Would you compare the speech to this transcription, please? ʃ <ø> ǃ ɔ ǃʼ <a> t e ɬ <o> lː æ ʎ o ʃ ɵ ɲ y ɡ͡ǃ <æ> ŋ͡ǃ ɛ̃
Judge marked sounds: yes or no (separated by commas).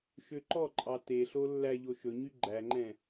yes, no, yes, yes